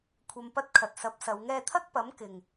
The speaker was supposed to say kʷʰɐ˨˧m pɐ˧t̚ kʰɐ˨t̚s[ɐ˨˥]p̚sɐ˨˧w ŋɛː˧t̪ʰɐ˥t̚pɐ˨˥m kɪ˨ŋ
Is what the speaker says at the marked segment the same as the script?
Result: yes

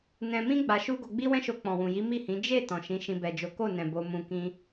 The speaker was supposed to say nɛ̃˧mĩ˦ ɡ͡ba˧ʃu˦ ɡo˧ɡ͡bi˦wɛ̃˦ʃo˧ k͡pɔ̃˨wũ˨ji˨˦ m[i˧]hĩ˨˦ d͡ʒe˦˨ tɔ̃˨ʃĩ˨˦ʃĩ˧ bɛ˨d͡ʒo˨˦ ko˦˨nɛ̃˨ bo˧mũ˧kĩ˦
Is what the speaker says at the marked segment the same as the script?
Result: no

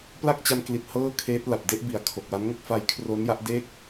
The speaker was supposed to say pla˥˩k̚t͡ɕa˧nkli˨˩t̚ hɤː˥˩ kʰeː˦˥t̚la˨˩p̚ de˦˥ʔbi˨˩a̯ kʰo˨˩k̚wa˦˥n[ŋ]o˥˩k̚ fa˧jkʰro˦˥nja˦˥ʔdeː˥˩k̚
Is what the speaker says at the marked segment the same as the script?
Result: yes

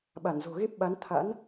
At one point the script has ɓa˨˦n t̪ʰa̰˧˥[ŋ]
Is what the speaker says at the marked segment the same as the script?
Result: no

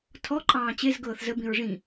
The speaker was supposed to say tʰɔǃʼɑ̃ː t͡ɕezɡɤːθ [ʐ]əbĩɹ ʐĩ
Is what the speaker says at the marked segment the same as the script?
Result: no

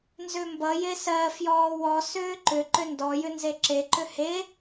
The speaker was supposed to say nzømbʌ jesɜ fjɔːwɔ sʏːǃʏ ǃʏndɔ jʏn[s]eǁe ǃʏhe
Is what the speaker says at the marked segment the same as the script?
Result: no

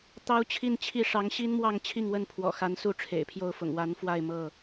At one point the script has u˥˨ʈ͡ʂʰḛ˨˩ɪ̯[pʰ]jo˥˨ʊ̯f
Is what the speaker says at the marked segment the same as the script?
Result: yes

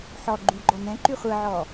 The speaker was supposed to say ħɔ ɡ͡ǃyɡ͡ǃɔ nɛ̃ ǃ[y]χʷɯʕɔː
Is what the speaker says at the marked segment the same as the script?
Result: yes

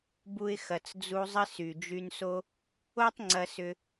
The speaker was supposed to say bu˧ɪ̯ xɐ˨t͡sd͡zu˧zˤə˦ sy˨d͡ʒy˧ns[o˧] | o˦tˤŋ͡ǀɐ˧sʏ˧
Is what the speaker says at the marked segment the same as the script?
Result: no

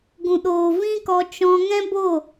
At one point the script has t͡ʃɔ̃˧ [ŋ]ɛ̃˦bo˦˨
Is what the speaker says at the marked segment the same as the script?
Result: yes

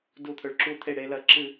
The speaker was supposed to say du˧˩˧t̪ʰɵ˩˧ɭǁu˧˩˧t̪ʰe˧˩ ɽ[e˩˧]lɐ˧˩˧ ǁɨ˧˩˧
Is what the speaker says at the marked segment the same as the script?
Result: yes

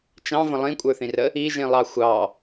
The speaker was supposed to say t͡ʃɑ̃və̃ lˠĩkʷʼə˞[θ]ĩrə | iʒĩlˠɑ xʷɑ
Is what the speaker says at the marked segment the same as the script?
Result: yes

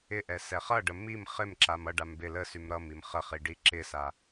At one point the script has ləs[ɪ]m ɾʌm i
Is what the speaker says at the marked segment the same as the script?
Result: no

